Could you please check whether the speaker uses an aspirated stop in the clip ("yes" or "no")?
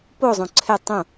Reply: yes